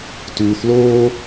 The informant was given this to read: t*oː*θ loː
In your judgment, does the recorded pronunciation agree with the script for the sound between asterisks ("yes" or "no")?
no